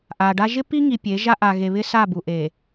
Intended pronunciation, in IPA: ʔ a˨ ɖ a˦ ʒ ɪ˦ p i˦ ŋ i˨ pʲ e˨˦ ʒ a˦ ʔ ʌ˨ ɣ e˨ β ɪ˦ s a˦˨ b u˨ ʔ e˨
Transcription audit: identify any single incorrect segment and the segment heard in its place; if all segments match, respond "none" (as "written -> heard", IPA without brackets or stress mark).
ʌ˨ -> a˨